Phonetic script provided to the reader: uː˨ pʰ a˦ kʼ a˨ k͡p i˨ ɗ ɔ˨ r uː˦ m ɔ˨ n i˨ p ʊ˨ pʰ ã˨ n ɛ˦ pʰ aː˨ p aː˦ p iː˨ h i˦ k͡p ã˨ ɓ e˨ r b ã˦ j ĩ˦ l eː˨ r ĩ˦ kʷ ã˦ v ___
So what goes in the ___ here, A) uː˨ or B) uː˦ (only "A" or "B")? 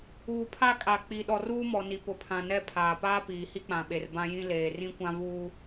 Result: B